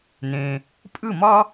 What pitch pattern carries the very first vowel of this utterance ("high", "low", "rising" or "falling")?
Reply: low